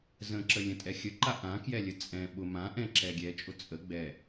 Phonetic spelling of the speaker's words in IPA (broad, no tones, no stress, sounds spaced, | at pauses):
z ə̃ ǁ ə lʲ ə̃ tʼ ɛ xʲ ə ǃ a ʔ ã k j ɛ lʲ ə t͡sʼ ɛ̃ ɓ ʊ m ã ʔ ɛ̃ ǁ ɛ ɡʲ ɛ t͡ʃʼ ʊ t͡sʼ ə ɡ͡b ɛ